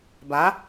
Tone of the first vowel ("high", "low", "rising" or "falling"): rising